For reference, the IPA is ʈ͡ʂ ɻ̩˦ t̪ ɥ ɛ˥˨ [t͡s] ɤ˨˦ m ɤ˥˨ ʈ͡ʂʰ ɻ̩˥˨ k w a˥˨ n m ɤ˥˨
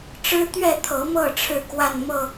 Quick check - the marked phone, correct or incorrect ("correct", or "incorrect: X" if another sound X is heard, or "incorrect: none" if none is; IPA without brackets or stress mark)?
incorrect: t̪ʰ